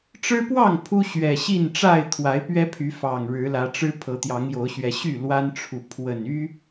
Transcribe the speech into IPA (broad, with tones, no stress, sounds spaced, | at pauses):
ʈ͡ʂ ɻ̩˦ p w ɑ˥˨ ŋ pʰ u˦ ɕ ɥ ɛ˨˩ ɕ i˥˨ n ʈ͡ʂ a˥˨ ɪ̯ t̪ʰ w a˨˦ ɪ̯ p ɥ ɛ˦ pʰ y˨˦ f ɑ˨˩ ŋ ɻ ɻ̩˨˦ l ä˨˦ ʈ͡ʂ ɻ̩˦ pʰ ɤ˨˦ t̪ j ɑ˨˦ ŋ j o˨˦ ʊ̯ ɕ ɥ ɛ˨˦ ɕ y˥˨ l w a˦ n ʈ͡ʂʰ u˨ pʰ w ə˨˩ n y˦